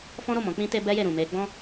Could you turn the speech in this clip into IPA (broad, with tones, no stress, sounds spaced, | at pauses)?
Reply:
f ɔ̃˦ ɾ o˦˨ m ɔ̃˨˦ k͡p ĩ˧ t e˧ b ɛ˧ j e˨ ɾ ũ˨ m e˧ ɡ͡b ɔ̃˦